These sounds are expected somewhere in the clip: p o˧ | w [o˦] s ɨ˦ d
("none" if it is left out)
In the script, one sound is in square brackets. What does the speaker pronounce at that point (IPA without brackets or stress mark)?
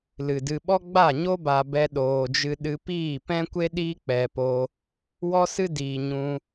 ɔ˦